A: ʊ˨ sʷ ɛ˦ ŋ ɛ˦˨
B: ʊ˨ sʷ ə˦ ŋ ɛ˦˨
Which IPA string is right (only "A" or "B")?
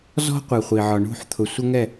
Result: B